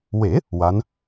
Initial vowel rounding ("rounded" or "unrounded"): unrounded